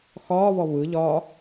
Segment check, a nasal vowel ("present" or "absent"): absent